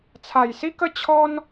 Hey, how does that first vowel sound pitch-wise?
low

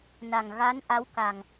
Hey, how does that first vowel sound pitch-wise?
low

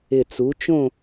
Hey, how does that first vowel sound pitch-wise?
low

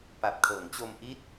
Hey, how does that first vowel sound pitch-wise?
low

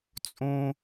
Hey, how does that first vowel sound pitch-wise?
high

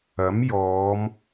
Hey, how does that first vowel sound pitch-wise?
rising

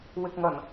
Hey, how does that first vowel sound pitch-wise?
low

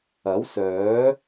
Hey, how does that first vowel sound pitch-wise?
rising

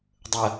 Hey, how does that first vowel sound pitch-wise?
low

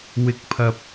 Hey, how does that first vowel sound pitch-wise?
rising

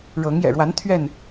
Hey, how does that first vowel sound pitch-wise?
rising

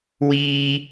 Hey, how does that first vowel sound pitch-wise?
high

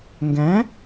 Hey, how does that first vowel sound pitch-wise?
rising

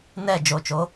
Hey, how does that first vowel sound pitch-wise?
falling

